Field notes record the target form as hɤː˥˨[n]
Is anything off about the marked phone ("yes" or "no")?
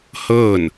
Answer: no